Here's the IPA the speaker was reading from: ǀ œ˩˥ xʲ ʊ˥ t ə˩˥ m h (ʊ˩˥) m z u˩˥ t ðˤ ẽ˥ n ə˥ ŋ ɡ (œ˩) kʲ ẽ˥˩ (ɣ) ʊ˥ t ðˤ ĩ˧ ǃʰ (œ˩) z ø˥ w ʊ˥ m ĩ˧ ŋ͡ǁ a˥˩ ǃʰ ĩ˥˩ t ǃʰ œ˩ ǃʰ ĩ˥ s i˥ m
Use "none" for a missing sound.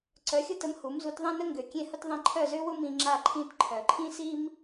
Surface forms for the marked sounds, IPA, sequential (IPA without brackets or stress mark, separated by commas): u˩˥, ø˩, h, œ˥˩